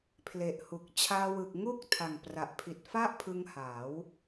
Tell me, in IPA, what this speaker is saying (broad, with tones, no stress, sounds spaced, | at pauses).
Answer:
pʰ l e˨˩ ʔ h u˨˩ k̚ t͡ɕʰ aː˧ w ɯ˨˩ k̚ ŋ uː˥˩ k̚ tʰ a˨˩ ŋ p r a˨˩ ʔ pʰ i˨˩ t̚ f a˥˩ ʔ pʰ ɯ˧ ŋ h aː˩˦ w